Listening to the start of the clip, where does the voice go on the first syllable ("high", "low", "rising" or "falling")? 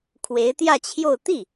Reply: rising